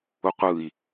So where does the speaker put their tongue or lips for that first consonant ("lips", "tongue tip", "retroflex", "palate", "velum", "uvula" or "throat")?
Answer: uvula